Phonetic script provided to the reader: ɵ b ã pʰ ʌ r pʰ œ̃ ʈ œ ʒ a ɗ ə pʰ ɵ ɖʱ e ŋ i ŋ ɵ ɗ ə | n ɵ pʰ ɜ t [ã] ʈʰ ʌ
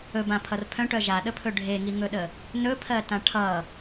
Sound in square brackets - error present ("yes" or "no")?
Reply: no